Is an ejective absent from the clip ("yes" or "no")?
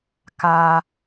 yes